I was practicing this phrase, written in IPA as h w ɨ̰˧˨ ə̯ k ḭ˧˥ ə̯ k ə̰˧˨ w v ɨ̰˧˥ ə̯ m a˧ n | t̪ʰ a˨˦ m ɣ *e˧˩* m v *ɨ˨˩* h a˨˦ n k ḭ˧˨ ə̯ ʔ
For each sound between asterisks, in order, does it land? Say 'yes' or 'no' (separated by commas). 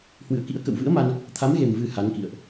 no, yes